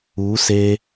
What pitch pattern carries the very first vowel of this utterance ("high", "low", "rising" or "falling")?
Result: rising